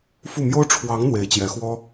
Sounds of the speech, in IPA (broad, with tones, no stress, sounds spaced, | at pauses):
f u˥˩ m j o˥ ʊ̯ ʈ͡ʂʰ w ɑ˧˥ ŋ n̪ w e˧˥ ɪ̯ t͡ɕ j ɛ˧˥ x w ɔ˥